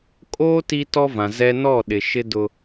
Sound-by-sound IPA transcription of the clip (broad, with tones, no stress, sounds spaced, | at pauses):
kʼ oː˦ t i˦ t ɔ˦ v ã˨ z ɛ˦ n ɔ˦˨ ɗ ɪ˨ ʃ ɪ˦ d ʊ˦